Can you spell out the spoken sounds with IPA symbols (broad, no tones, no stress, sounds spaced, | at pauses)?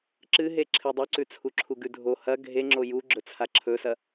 ǁ ɨ ɦ e ǁʰ ɨ dˤ u ǀ ʉ t͡sʰ u ǁʰ u ɡ ʉ dʱ o h ɐ ɡʱ e ŋ͡ǁ o j u ɡ͡ǁ ɵ t͡sʰ a ǁʰ ɵ s ɐ